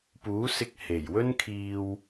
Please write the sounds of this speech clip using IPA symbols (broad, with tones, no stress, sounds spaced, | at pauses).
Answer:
p uː˨˥ s ɪ˧ k̚ h e˨˩ j w ɵ˥ n kʰ iː˧ w